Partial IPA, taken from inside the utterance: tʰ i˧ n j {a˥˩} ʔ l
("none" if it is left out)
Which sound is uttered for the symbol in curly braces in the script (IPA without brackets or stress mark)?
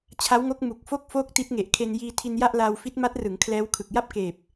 a˥˩